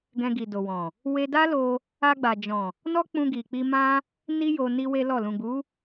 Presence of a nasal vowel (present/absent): present